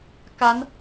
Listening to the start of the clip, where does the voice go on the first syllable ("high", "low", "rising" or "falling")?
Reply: rising